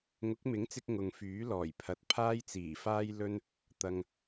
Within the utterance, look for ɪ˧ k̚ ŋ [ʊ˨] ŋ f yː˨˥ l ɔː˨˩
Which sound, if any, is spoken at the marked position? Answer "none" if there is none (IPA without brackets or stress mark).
ʊ˨